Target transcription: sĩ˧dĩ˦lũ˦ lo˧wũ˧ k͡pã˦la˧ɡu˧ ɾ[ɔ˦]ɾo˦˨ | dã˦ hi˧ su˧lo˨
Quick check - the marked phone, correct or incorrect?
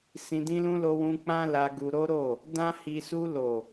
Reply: incorrect: o˦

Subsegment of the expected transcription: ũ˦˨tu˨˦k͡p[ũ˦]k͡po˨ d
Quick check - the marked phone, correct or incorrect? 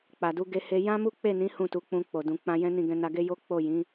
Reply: incorrect: ũ˧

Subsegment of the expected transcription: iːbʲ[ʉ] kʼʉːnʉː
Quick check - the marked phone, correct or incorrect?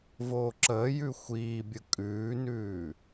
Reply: incorrect: ə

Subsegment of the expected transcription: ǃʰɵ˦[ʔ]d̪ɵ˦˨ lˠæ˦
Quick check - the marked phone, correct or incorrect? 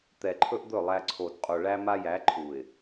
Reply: correct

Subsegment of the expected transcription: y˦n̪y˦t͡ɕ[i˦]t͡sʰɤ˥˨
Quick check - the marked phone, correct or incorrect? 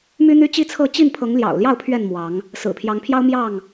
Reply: correct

